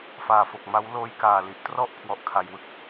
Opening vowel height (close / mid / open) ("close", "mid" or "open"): open